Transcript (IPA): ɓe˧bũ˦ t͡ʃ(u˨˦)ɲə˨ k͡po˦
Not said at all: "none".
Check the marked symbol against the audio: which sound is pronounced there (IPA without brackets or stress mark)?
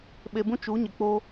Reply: u˨˦